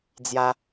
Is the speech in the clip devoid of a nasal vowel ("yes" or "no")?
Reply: yes